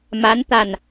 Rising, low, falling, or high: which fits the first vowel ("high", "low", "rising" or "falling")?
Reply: rising